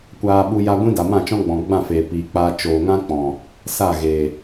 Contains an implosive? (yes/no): yes